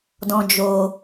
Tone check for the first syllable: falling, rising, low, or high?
low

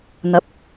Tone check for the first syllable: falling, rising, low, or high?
low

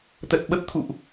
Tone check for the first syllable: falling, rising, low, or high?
low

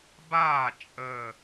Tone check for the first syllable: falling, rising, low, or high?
falling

